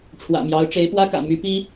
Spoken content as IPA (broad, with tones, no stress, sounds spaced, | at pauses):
ʈ͡ʂʰ w ä̰˨˩ m j ɑ˧˥ ʊ̯ ʈ͡ʂ e˧˥ ɪ̯ p w ä˥ k ä̰˨˩ m y˧˥ p i˥